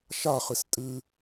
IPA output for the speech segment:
ʃaχɨs tʼɨ

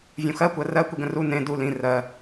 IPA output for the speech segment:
vʲũxɜ kʷɜrɜ kʷiɡə̃ru nẽ du lĩ rɜ

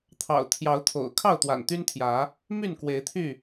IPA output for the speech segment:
t̪ʰɑ̰˨˩ʊ̯t̪ʰjɑ˨˦ʊ̯t̪ʰo̰˨˩ʊ̯ kʰɑ˥˨ʊ̯t̪wa̰˨˩nt̪y˦nt̪ʰjä˨˦ | my˥˨nkwe˨˦ɪ̯t̪ʰy˥˨

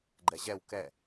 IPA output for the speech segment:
ɡ͡ǃɛʑɛw kɛ

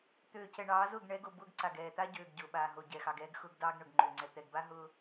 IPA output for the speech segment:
t̪øː˨cɛ˨ɳɑː˨˦zʊː˦˨ɡ ɳɛ˨˦ɡo˨ bʊː˦ɡǀa˨ɡ ɛː˨t̪a˦ɟøː˨ɡ ɟʊː˨ɓaː˨ɦo˨ɟɛ˨ xɑ˨ɡɛː˦ɡxʊː˦ɡ dɑː˦ɡɳʊ˨ɡŋ͡ǃø˨ŋ͡ǀɛ˨ t̪ɛ˨ɡba˦ ɦʊː˦

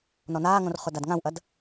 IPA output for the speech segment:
nɔnaːŋõr χʊdadŋãwʔɐd

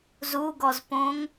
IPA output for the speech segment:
zuɡɔzpõŋ

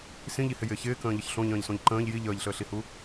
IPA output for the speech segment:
sĩʎihɪjɪː çɪːkə̃ːʎəç ɬõʎə̃ːʎsõʎ ǃə̃ːʎ ji ʎəːʎɬəːɬihu

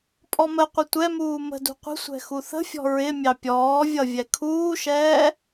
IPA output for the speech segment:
pʼɔməqʷə tʷɛmuː mə̤dṳ qʷə̤sʷɛ̤ xuθə̤fʲɔ̤ ɹɪ mʲɑpʲɔːvʲʌ vʲɛkʰuːʃɛː

